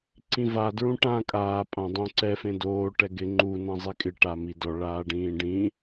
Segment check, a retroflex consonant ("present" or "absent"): present